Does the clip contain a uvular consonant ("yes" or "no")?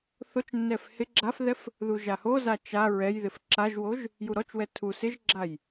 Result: no